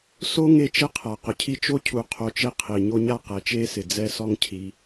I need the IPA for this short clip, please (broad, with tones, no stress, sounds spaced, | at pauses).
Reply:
s o˥ ŋ e˦ t͡ʃ e˥ qʰ a˩ q ʊ˩ cʰ i˦ t͡ʃ o˥ cʰ u˨ qʰ o˨ t͡ʃ e˦ qʰ i˩ ɲ o˦ ɲ a˦ q ɛ˩ t͡ʃ e˦ s ɪ˩ d͡z ɛ˦ s ɔ˦ ŋ cʰ i˨